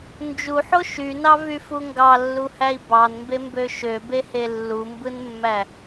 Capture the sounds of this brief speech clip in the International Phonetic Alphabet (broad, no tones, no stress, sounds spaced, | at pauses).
n d͡ʒ u ħ o ʃ y n ɑ v y f u ŋ ɡ ɑ lː u h æ i̯ b ɑ n m b e m b ø ʃ ø b e h e lː u m b ɯ n mː æ